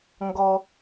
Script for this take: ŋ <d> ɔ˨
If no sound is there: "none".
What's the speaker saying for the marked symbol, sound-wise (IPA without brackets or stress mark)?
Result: ɡ